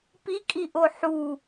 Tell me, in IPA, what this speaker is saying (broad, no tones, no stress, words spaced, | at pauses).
pikʼiʔo ħu